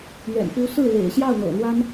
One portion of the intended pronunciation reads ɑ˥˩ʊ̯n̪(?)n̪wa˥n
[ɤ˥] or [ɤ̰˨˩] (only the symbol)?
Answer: ɤ̰˨˩